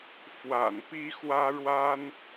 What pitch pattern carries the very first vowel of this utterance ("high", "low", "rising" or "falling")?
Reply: low